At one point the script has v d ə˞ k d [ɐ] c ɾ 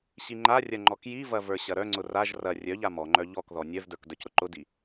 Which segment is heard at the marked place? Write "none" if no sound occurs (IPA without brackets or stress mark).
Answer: ə˞